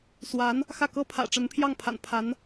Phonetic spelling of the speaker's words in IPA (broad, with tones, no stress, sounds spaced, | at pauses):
s w a˧˥ n | x ä˥˩ k ɤ˥ pʰ ä̰˨˩ ʈ͡ʂ ə˧˥ n pʰ j ɑ˥˩ ŋ pʰ a̰˨˩ n pʰ a˧˥ n